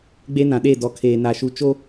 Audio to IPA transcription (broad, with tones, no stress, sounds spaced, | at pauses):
ɡ͡b e˦ n ã˨ ɗ e˦˨ d ɔ˨ kʰ eː˨ n a˨ ʃ u˨ t͡ʃ o˦